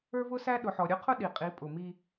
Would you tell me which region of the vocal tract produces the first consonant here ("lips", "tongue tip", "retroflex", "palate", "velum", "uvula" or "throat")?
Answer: lips